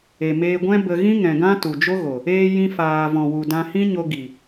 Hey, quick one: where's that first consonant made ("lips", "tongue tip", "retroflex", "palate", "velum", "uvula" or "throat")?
lips